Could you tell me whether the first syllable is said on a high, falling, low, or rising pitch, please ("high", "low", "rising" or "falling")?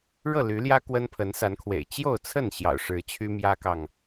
falling